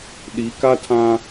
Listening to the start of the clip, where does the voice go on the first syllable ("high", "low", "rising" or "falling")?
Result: rising